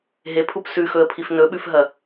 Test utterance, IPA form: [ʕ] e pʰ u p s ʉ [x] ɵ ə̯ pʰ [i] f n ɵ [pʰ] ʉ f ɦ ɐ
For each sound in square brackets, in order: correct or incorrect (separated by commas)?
incorrect, correct, correct, incorrect